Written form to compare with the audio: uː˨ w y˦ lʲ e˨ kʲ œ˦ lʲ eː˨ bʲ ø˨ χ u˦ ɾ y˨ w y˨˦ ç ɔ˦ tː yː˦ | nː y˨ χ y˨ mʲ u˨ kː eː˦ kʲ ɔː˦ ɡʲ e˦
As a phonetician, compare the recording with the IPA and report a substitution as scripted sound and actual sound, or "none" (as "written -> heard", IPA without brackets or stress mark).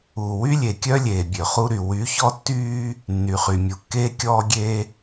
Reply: none